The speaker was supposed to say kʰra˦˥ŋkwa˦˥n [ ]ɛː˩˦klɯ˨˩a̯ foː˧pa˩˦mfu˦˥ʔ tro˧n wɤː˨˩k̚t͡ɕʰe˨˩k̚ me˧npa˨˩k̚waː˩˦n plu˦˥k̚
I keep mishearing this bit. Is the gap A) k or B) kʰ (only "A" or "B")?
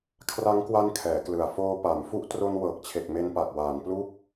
B